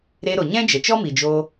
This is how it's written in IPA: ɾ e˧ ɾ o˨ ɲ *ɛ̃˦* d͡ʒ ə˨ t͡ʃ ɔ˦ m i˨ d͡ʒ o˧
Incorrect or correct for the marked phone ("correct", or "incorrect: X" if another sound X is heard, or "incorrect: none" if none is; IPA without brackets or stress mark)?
correct